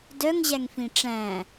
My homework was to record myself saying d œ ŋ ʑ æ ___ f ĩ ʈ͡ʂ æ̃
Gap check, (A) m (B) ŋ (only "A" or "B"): B